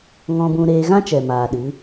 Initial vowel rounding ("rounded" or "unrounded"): rounded